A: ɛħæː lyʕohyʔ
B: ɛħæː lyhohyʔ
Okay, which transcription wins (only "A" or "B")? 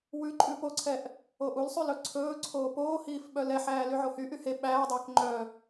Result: A